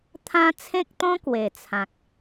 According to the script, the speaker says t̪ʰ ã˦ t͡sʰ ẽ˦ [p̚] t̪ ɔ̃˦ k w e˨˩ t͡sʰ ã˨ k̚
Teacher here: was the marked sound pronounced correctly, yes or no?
no